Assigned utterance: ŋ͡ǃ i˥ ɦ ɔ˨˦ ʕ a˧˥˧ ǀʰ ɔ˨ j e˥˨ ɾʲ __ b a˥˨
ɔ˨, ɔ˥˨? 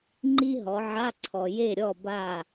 ɔ˥˨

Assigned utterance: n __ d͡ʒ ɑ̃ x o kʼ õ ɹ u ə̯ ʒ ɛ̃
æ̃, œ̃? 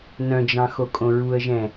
œ̃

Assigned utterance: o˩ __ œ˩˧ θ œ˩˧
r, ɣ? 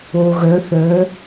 ɣ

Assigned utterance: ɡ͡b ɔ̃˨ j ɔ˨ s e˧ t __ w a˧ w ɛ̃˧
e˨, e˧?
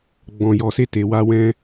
e˨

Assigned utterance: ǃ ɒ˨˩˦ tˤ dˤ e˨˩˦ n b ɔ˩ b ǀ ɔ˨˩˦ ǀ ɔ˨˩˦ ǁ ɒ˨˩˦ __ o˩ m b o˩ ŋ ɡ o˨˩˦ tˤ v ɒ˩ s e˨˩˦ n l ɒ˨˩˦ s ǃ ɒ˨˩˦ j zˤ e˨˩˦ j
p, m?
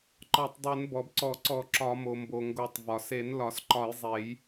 m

